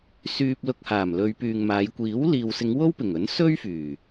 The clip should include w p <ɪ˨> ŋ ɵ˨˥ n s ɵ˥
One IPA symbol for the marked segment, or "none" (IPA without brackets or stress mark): ɪ˨˩